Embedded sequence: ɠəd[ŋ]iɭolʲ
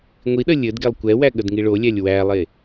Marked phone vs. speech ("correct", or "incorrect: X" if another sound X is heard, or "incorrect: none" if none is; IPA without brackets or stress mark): correct